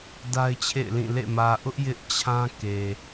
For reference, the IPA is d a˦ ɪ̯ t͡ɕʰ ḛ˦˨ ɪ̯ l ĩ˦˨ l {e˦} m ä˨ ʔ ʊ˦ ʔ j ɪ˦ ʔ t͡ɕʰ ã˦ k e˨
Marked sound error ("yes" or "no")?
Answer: yes